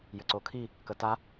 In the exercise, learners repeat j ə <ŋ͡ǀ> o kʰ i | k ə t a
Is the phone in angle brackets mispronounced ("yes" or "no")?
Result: yes